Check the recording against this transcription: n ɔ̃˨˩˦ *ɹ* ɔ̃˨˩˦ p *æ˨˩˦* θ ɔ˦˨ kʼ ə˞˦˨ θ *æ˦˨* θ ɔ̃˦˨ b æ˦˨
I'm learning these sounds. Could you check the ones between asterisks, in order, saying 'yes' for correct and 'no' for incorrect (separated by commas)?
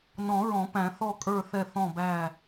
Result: yes, no, no